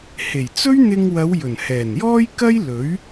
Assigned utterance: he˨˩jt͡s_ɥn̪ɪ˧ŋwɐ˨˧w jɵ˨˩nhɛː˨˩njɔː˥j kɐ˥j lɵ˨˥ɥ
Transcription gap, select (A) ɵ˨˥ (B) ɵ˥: B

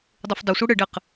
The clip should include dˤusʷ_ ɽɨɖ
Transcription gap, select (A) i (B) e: A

